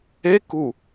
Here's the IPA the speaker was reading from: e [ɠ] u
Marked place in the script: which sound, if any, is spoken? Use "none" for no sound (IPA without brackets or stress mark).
k